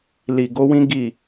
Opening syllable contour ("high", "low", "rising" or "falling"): low